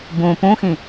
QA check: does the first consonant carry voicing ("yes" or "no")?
yes